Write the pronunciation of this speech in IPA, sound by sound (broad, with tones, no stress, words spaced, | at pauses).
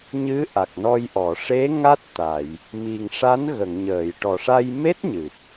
ɲɨ˧˥ ʔa˨˩k̚nɔ˧jʔɔ˨˩˨ ʂe˧˥ ŋa˦˥t̚t̪a˨˩˨j | mi˨˩ŋ ʂa˧˥n ɣə˨˩˨ŋɲəː˨˩˨jʈɔ˨˩ʂa˧j me˦˥t̚ɲɨ˨˩p̚